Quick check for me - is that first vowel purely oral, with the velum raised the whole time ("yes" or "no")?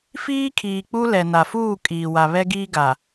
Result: yes